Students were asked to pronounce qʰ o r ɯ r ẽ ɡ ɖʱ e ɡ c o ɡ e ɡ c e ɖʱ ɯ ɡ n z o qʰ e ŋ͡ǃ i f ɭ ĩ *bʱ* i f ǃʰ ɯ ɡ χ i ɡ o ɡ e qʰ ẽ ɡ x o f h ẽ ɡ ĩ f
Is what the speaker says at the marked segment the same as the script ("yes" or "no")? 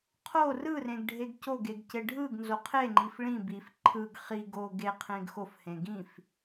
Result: no